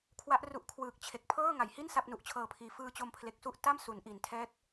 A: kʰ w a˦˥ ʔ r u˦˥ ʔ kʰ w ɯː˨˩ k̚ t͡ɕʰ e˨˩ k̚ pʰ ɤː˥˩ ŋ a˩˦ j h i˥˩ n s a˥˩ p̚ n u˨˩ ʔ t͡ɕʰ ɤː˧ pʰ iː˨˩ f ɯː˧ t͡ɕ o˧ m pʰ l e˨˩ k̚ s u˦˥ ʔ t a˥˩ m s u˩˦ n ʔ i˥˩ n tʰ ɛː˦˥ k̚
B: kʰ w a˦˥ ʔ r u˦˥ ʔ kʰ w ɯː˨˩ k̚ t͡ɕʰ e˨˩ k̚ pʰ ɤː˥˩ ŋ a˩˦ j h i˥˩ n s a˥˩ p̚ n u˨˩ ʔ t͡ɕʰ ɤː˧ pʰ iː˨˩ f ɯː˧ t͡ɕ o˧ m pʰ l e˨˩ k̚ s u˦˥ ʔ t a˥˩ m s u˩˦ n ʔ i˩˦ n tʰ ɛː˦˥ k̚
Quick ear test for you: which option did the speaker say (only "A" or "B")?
B